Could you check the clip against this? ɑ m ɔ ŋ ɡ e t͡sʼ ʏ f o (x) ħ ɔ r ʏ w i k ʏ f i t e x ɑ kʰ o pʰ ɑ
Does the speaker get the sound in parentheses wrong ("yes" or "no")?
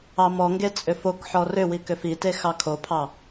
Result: yes